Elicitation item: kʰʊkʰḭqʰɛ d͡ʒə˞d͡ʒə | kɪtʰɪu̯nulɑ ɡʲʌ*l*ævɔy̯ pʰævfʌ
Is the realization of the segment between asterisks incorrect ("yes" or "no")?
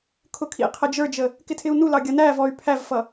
yes